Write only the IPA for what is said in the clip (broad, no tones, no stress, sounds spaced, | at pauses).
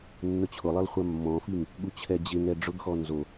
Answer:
nː ʊ t͡ɕʰ ʊ lˠ e lˠ χʷ a mː ɔ̃ f i ŋ | ɠ u t͡ɕʰ ɛ d͡ʑ ɪ ŋ ɛ ɖ͡ʐ ʊ ɡ x ɔ n z o